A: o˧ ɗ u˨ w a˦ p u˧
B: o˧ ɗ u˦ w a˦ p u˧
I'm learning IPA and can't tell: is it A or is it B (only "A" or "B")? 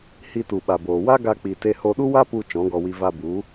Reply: B